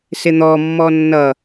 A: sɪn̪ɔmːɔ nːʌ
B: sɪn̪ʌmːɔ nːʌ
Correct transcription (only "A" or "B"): A